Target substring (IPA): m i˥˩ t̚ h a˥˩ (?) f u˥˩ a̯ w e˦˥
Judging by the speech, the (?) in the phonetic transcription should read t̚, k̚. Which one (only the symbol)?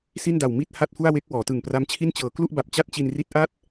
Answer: t̚